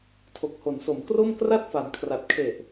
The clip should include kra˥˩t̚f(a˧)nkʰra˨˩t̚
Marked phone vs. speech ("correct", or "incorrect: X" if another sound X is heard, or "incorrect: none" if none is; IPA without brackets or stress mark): incorrect: a˩˦